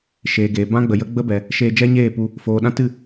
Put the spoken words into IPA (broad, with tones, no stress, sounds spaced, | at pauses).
ʃ eː˨ ɡ eː˨ b ã˦ ɡ͡b ə˨ j ə˦ ɡ͡b ə˦ b ɛ˨ | ʃ eː˧ d͡ʒ ɛ˦ ɲ eː˦˨ p u˧ | f oː˨ ɗ ã˦ t ɨ˦˨